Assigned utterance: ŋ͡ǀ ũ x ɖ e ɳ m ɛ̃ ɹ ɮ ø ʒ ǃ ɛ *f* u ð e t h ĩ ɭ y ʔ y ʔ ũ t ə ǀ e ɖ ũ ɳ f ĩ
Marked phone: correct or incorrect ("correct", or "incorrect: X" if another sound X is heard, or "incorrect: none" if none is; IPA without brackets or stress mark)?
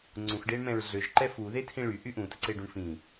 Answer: correct